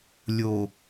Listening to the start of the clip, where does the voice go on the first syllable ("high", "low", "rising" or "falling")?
low